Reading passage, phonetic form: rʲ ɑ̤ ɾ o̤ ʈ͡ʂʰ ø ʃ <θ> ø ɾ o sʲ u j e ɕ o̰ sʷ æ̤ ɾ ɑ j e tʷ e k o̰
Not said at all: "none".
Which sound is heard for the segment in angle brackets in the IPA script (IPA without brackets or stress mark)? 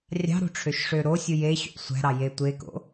ʂ